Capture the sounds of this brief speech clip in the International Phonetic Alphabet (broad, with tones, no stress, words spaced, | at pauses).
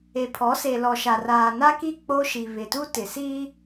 e˨pʰɔ˨˦se˨ lɔ˨ʃa˨raː˨ na˦ki˦˨ k͡po˦ʃi˨ βɪ˨tu˦ tɪ˨siː˦